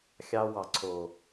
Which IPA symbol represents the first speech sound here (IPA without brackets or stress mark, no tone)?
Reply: xʲ